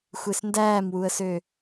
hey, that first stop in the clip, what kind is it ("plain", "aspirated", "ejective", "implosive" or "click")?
plain